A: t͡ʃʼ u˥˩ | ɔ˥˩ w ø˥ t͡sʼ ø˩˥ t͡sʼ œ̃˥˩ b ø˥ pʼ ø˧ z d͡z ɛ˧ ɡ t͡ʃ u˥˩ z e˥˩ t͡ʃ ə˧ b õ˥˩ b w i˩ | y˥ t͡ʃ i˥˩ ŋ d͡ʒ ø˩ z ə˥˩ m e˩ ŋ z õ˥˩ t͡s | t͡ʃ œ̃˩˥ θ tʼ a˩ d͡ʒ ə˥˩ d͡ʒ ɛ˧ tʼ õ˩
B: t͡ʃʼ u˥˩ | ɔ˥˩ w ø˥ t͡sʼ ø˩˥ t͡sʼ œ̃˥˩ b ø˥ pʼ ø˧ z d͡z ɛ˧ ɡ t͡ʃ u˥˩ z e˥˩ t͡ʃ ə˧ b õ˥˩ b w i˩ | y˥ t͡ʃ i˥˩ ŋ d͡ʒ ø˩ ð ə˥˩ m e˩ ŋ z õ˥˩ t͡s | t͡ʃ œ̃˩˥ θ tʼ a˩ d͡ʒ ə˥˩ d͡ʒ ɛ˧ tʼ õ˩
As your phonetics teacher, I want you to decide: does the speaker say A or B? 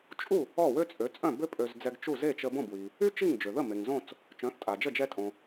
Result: B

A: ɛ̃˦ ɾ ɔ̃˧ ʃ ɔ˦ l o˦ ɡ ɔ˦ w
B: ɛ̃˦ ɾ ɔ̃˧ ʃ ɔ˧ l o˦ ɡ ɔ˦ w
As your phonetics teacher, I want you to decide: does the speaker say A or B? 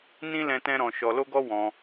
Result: B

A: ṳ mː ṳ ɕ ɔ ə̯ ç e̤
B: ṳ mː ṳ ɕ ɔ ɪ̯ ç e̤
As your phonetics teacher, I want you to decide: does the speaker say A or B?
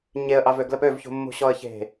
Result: A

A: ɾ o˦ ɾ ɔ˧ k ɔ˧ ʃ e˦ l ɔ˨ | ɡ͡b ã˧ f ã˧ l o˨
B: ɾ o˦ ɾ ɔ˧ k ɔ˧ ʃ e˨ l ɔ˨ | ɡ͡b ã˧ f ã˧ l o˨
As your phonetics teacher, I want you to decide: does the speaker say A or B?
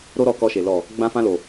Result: B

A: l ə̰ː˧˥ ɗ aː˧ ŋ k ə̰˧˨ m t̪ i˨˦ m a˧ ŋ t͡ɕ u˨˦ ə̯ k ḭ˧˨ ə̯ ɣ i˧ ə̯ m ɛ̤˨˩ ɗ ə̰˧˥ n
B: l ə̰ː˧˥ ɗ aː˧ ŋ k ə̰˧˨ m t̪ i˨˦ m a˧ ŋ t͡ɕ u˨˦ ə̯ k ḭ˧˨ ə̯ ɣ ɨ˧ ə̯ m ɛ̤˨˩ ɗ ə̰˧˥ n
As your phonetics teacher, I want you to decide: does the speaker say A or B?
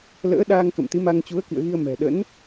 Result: A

